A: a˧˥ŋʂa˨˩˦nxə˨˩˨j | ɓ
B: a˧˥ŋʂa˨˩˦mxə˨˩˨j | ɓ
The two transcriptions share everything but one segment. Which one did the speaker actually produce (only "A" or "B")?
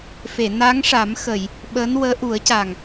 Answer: B